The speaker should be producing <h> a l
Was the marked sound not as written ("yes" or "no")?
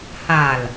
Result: no